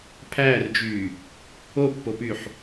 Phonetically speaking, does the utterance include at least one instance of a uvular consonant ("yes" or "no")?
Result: no